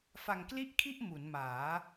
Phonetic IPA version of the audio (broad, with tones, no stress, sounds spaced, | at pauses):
f a˧ ŋ k l i˥˩ ʔ kʰ i˥˩ ʔ m u˩˦ n m aː˩˦